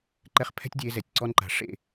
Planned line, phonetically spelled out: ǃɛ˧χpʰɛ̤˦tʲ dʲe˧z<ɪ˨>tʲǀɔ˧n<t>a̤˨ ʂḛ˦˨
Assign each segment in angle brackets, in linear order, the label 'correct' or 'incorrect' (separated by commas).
incorrect, incorrect